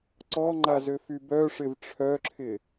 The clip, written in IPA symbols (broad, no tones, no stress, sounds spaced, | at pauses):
ǀ ɔ ŋ͡ǃ a z ø f y b œ ʂ ɪ v ʈ͡ʂʰ œ ǁʰ ɪ